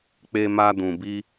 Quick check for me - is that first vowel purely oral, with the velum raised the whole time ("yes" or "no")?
yes